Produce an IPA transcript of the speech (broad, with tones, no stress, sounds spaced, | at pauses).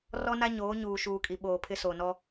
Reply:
r ɔ˦ n a˦ ɲ oː˨˦ ɲ uː˨ ʃ uː˨ kʼ i˨ ɓ oː˨ pʰ ɪ˦ s o˨ n ɔ˦